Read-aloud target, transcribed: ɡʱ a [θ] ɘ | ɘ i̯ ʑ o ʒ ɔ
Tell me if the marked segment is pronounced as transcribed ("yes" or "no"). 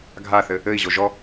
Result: yes